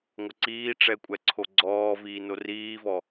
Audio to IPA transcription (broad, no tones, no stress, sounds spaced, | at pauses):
ŋʷ ə ǀ iː ʈ͡ʂ ɛ kʷʼ ɛ ǀʰ o ɡ͡ǀ ɔː v iː n o r iː v ɔ